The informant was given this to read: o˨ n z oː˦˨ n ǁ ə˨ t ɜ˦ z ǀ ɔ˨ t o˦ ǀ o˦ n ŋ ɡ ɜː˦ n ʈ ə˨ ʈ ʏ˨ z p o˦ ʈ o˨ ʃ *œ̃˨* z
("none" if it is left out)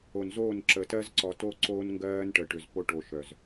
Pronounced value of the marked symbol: œ˨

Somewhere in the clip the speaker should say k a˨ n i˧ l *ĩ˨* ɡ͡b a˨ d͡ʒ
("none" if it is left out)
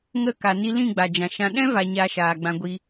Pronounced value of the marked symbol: ĩ˦˨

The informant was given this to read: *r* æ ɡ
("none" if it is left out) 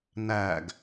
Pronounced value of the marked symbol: n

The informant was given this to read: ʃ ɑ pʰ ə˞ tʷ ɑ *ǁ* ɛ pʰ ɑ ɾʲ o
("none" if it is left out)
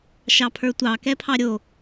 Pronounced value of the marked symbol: k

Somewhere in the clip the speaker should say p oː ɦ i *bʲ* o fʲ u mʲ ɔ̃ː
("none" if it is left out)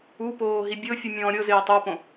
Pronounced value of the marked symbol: bʲ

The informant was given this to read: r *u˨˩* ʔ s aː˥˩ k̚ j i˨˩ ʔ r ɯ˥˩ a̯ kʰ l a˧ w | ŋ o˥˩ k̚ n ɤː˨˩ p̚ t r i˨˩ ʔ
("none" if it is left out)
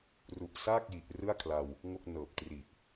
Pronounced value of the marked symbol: u˨˩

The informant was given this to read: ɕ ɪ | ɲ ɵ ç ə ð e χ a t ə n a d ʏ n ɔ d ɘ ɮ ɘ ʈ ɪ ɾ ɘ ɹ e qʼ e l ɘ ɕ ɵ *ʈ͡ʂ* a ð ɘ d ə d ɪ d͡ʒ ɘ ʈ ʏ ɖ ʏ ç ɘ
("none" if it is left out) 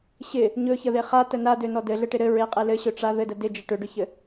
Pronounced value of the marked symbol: ʈ͡ʂ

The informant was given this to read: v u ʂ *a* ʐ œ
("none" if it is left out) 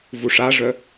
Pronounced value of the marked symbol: a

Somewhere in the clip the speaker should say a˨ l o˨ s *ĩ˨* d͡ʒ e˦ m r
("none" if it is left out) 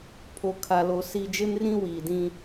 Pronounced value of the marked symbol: i˨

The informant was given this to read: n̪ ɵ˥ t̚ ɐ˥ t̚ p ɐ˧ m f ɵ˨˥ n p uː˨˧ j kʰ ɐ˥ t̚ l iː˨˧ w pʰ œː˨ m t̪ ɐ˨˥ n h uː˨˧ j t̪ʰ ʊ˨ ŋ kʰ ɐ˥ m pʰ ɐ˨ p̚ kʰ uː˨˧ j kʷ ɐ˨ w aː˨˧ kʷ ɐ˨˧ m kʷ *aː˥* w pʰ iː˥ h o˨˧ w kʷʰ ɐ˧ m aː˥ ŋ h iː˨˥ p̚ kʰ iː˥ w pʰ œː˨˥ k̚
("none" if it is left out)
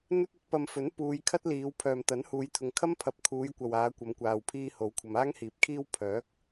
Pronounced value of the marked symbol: aː˨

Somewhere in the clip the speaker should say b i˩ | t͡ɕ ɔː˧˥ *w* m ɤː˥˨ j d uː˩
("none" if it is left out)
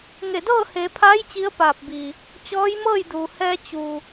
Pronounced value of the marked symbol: j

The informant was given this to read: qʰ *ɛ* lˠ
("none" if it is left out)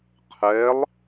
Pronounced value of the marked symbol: ɛ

